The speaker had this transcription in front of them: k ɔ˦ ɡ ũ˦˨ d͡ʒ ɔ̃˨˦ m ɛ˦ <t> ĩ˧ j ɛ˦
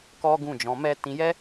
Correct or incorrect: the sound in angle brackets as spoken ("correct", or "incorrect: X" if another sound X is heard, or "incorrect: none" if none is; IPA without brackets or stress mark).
correct